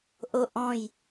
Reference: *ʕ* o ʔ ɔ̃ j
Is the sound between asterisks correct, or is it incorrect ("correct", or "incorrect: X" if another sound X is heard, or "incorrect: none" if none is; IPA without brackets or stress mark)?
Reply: incorrect: ʔ